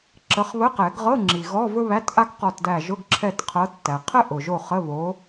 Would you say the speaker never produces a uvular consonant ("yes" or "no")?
no